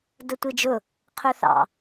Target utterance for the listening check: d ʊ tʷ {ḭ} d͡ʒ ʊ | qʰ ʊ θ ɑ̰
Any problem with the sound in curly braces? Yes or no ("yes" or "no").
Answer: yes